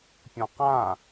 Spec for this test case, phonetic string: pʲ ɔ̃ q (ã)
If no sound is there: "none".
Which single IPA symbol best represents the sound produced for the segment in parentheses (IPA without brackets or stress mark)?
ã